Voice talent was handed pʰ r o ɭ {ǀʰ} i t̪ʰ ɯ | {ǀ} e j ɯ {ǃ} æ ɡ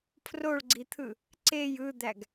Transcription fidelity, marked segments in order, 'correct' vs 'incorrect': incorrect: ɡ͡ǀ, correct, incorrect: d̪

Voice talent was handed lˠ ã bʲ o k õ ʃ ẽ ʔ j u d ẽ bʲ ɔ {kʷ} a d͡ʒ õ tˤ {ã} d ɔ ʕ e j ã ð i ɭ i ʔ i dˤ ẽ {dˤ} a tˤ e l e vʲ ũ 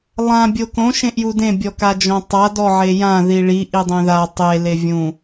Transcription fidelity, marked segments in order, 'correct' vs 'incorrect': incorrect: k, incorrect: a, incorrect: ð

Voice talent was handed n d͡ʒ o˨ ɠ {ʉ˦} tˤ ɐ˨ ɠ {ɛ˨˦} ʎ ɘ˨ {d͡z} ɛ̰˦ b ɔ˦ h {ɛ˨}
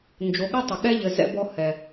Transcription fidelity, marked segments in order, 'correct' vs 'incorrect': incorrect: ɨ˦, incorrect: ɛ˦, incorrect: z, correct

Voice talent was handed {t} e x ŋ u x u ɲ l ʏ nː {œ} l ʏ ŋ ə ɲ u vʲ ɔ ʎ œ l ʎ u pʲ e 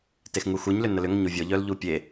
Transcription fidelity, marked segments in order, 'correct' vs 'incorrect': correct, incorrect: ə

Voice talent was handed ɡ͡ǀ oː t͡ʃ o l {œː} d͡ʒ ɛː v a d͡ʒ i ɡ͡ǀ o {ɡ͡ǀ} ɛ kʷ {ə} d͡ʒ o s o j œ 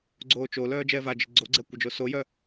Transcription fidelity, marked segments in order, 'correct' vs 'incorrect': correct, correct, correct

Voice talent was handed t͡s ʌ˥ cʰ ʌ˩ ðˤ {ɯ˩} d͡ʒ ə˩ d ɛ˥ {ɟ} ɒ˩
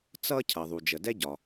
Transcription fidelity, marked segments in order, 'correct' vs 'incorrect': incorrect: u˩, correct

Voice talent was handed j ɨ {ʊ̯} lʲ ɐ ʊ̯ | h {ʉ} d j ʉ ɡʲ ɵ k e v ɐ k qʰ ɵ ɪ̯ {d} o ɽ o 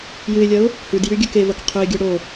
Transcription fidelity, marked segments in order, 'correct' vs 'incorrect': incorrect: ɪ̯, correct, incorrect: ɡʲ

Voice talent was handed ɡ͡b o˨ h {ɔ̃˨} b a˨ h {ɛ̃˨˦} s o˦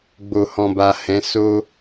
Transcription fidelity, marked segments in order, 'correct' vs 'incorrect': correct, correct

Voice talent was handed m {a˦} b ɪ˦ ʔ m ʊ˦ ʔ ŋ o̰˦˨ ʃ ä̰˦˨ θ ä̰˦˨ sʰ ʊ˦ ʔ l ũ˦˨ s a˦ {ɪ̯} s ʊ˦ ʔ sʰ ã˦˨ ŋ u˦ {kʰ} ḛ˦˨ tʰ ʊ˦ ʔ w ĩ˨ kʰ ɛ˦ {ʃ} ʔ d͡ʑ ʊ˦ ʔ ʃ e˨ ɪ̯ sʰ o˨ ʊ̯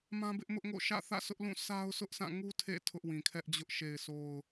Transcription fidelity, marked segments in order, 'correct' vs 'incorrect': incorrect: ã˦, incorrect: ʊ̯, incorrect: tʰ, incorrect: none

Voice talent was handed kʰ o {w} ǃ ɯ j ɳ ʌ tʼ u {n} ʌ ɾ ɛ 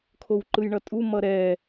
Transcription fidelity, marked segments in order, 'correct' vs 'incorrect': correct, incorrect: m

